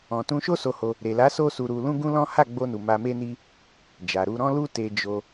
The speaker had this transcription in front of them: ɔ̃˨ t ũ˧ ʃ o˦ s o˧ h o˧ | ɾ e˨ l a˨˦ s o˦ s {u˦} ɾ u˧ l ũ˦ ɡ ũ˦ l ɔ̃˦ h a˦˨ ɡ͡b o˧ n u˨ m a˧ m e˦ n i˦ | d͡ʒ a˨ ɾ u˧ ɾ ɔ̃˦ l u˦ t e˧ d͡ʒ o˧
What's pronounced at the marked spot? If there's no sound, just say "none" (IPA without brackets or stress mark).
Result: u˧